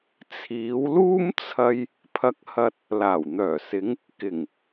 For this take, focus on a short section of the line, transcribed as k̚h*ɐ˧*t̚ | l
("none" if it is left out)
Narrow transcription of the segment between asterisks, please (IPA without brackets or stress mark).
ɐ˧